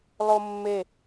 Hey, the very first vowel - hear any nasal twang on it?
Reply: no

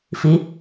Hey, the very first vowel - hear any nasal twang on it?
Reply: no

